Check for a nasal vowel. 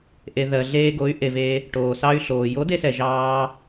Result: absent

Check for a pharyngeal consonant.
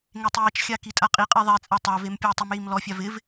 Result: absent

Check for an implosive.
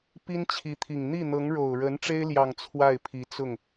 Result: absent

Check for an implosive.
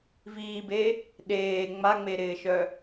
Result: present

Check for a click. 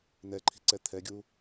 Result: present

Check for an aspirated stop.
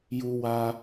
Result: absent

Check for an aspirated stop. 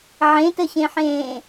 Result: absent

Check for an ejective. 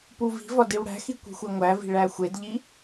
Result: absent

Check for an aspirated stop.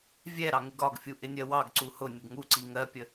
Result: absent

